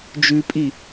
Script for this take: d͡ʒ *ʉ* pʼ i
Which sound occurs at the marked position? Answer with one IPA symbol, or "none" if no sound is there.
ʉ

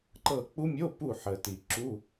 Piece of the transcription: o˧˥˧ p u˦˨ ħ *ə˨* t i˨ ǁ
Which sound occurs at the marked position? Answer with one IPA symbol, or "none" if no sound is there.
ə˨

